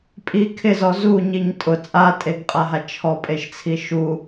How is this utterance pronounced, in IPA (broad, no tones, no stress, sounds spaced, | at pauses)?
pʼ i kʰ ɪ z ɔ z u ɲ i ɲ tʼ ʊ t͡sʼ a tʼ e ɡ qʼ a ɦ a t͡ʃʰ ɔ pʼ e ʃ t͡sʰ i ʃ u